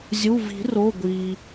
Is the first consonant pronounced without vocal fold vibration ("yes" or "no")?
no